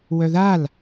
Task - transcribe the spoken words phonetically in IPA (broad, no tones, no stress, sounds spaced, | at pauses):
w œ ð a l